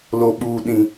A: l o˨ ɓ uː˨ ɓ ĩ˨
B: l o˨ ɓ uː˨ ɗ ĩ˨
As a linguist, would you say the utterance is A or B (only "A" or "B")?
B